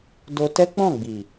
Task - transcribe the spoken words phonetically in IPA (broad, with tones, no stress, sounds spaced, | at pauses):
d o˧ t ɛ˦ k͡p ɔ̃˦˨ ɡ͡b i˨